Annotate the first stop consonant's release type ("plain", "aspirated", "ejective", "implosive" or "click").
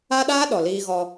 implosive